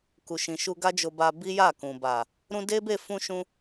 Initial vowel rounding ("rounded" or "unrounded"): rounded